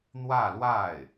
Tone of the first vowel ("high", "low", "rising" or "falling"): falling